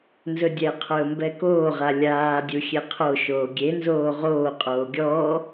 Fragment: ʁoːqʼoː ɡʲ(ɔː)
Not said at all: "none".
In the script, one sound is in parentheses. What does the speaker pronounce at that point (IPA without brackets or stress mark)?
ɔː